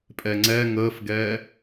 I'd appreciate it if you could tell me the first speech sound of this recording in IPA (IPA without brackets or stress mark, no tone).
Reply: pʼ